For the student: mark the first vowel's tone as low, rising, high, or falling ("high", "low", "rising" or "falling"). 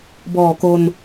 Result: low